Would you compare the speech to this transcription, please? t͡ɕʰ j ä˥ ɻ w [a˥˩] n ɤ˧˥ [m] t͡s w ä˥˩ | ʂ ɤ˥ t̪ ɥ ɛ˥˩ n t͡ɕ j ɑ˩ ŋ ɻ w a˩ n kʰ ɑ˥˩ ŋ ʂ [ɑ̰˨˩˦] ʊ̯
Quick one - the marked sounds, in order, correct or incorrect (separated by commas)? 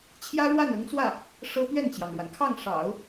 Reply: correct, incorrect, correct